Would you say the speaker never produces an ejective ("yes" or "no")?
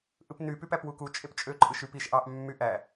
no